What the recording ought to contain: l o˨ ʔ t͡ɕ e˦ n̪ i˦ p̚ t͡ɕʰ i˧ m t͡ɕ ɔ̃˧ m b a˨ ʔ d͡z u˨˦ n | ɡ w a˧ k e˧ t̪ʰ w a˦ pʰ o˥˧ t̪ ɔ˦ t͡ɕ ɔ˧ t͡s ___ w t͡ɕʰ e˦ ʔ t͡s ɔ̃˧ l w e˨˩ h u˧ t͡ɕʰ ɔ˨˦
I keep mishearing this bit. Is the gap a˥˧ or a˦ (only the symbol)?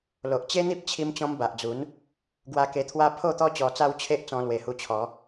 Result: a˦